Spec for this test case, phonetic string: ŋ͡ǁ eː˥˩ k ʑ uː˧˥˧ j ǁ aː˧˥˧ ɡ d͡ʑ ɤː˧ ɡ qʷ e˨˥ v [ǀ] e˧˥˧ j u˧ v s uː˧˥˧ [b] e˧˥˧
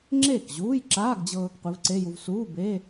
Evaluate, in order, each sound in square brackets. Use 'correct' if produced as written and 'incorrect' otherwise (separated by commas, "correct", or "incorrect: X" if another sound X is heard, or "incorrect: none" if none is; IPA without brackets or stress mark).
correct, correct